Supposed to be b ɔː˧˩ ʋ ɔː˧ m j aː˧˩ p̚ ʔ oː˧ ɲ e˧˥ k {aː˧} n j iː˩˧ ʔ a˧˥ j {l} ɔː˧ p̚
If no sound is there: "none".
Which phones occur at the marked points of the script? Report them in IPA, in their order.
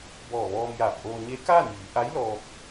aː˥˨, l

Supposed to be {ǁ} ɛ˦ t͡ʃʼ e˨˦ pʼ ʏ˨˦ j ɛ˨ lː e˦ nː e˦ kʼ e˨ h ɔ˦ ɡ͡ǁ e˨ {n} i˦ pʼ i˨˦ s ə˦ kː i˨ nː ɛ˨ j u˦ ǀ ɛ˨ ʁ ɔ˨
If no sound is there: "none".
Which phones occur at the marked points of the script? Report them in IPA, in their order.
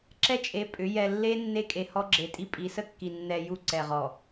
ǁ, tʼ

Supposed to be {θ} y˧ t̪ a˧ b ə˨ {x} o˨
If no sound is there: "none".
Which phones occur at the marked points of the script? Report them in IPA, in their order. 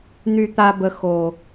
n̪, x

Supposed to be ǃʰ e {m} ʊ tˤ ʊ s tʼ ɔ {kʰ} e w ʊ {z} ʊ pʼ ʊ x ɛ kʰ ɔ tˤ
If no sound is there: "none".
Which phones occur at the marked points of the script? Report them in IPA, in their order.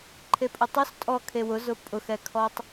pʼ, kʰ, z

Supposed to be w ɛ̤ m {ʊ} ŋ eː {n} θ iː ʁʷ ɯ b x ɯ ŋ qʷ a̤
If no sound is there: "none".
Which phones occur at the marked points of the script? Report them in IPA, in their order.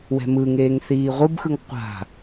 ɯ, ŋ

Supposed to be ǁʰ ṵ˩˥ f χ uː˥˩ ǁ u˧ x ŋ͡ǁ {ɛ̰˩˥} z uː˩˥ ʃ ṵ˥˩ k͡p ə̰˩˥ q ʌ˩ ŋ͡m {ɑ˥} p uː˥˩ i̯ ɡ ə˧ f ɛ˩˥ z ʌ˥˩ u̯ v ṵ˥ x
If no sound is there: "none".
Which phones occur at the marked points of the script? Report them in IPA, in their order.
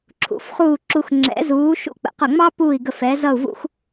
ɛ̰˩˥, ɑ˥

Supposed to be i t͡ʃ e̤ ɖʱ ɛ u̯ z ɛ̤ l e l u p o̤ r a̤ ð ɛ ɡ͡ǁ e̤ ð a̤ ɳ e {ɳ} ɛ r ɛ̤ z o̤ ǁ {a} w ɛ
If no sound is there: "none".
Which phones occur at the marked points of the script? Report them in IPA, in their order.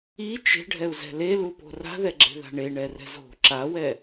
ɳ, a

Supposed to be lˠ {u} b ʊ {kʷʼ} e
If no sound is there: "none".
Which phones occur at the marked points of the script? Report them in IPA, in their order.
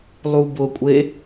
u, kʷʼ

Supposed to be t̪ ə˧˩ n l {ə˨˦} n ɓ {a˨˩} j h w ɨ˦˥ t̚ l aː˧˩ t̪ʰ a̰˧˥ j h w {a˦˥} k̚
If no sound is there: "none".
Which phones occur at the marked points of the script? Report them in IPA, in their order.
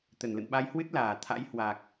ə̰˧˨, a˧, a˨˩

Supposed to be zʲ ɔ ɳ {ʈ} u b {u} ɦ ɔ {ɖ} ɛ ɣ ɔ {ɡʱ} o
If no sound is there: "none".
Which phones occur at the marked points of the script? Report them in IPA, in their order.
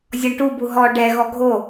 ʈ, u, ɖ, ɡʱ

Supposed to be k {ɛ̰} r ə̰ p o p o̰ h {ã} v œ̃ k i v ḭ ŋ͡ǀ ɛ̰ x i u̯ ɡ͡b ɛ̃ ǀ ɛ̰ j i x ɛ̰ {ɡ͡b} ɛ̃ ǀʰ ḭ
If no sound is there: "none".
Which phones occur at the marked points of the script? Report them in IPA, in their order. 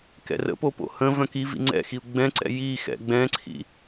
ɛ̰, ə̃, ɡ͡b

